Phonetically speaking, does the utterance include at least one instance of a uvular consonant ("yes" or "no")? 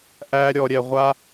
yes